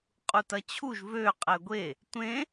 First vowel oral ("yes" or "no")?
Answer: yes